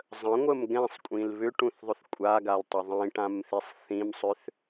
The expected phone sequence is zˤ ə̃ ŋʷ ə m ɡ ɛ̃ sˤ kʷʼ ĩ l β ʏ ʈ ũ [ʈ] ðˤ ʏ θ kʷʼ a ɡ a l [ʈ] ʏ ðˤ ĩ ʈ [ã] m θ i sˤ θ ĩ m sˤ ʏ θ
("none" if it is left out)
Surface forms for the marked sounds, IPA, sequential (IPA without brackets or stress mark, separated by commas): θ, tˤ, ã